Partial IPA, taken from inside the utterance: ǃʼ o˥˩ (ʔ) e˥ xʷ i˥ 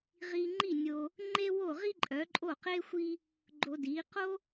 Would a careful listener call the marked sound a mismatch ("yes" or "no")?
yes